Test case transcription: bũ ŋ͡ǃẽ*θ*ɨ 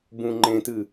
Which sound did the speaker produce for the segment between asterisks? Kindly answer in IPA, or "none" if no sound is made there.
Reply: t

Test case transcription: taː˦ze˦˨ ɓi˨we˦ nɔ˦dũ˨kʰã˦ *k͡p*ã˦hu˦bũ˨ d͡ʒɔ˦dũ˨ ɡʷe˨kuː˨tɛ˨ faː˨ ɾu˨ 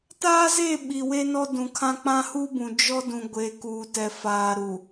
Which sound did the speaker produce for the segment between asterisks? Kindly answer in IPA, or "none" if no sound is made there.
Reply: k͡p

